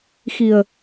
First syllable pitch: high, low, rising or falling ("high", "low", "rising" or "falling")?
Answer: low